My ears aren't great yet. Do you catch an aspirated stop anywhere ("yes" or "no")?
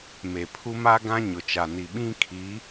yes